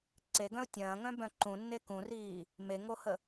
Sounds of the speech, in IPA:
ǀeɡœ̃ʊ̯ tʲɐ̃ːŋœ̃bœ̃ ǃũnːe kũriː | meŋohə

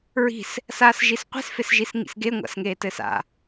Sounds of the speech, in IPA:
ɹi̤s | saːsʒisqʷi̤s fesʒisŋḭsɡe ŋʷa̰sŋeːtɘːsa̰

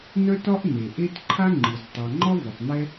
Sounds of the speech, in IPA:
nœ˥tɒ˥ʔ ne˩ʔe˥t ǃʰa˥ŋ͡ǃɯ˩z tˤa˩ŋ͡ǃɒ˥ vɯ˩tˤn̪ɛ˥

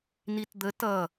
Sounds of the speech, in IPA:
nitd̪ə tʌ

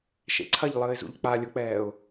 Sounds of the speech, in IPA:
ʃḛǀʰɐʎlˠəːɪ̯zṵʎ k͡palʲʊk͡pɛːʊ̯

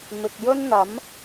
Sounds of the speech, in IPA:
mɪ˨k̚jɵ˥n n̪ɐ˨˥m

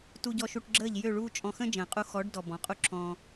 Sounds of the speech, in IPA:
tu˧ɟɔ˧ʃu˧ʈɡ͡ǁəː˦˨ʎ jø˦˨ɭuː˦t͡ʃʼɔ̃˧ xə̃˦ d͡ʒə̃ː˨qʼu˧ xɔ˨˦ɖdɔ˨ bɔ̃˨qʼu˦ǁʰɔ̃ː˧

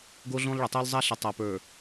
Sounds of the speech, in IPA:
ɡo˦ɮõ˦lˠɭə˨ tˤo˦lˠ zˤa˦ɬə˨ tˤa˨pə˞˨

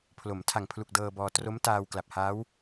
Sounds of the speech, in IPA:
pʰlo˩˦m tʰa˨˩ŋpʰlu˨˩k̚ dɤː˧bɔː˧ tro˦˥mtaː˧w kla˨˩p̚haː˦˥w

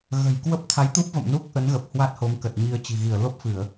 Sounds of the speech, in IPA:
ɣə̤˨˩jkwə˦˥p̚ t̪ʰa˨˦jt̪u˦˥p̚və̰˧˨m nu˦˥k̚ ʔə˨˦nɣə˨˩p̚hwa˦˥t̚ ho˨˦mkə˨˩t̚ɲi˧ə̯ t͡ɕi̤˨˩ɣi˧˩ə̯ lo˦˥p̚fɨ˧˩˨ə̯

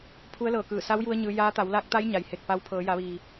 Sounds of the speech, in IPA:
pʰu˧˥ə̯lɤː˧˩kɯː˧˩ sa˧˥wju˧ə̯ ɲɯː˧˥ jaː˧˥ t̪a˩˧wlaː˧˥k̚t̪a˧˥j ɲa˩jhe˧˩k̚pa˧w pʰɤː˩˧ ja˩˧ʋiː˩

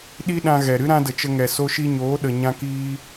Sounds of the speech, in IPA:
ɗi˦ɗã˧ɣɛ˨ɾɨ˦ ɾã˦də˨t͡ʃə˧ŋɛ˨ so˧ʃi˧ɲoː˨˦ɗə˨ ɲã˦kiː˦

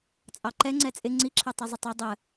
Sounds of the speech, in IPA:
t͡sʼɑǃɛ ŋ͡ǀɛt͡sʼɪ ŋ͡ǀiǁʰɛ tˤɛzˤʊtˤə˞ dˤə

